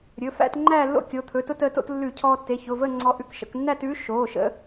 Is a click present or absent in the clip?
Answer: present